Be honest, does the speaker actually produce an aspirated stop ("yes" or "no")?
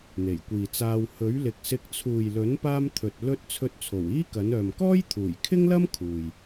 yes